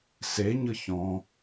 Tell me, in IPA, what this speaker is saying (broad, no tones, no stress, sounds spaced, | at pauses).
s e ɲ ɤ ç ɔ̃